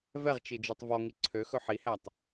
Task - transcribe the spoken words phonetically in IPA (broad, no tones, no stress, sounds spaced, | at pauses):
v ɛ ʁ t͡ʃ i d͡ʒ ʉ tˤ v ɔ ŋ i ǀʰ ø x ɵ ħ i h æ tˤ